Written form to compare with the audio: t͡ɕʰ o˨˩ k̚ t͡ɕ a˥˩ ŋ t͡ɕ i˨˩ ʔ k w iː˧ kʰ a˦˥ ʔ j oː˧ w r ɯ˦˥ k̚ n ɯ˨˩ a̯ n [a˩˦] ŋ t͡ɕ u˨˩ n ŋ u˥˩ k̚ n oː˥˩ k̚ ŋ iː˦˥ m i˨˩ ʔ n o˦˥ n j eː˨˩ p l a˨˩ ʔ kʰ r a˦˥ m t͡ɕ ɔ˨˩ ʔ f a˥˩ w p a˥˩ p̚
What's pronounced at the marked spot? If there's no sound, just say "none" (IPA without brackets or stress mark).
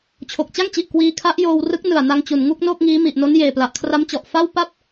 a˧